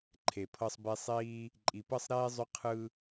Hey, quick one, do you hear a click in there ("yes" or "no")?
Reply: yes